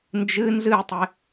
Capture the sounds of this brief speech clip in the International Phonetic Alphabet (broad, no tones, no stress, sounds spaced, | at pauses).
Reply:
n d͡ʒ ɨ n z ɨ tˤ e